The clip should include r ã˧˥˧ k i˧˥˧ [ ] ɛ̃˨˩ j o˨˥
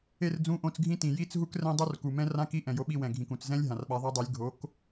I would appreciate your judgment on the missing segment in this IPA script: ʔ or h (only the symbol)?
ʔ